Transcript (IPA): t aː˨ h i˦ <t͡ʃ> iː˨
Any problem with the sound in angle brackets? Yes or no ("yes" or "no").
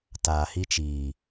no